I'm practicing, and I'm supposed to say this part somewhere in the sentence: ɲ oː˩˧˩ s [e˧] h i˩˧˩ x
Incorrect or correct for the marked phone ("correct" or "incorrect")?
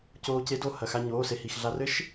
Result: correct